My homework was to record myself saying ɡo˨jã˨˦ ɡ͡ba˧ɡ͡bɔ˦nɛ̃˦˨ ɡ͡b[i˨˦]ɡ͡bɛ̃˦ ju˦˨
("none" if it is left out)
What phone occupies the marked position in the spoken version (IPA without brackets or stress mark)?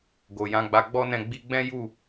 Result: i˧